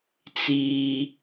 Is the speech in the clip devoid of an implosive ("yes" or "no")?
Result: yes